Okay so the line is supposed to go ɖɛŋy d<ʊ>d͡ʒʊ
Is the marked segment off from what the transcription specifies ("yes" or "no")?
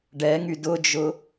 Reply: no